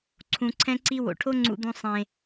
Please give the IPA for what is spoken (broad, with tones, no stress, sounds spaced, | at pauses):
ǀʰ ũ˨ ǀʰ ɛ̃˦ ǀ i˦ w o̰˨ ʈʰ o˦ ŋ͡ǀ ṵ˨ d̪ ũ˨ sˤ ẽ˨